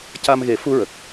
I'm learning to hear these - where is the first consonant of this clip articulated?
palate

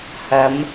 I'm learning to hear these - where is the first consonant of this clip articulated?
throat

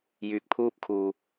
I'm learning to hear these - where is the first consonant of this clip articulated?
palate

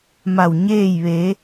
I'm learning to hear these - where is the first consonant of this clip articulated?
lips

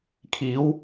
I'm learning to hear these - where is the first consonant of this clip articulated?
velum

